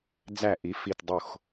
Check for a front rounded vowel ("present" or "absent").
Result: absent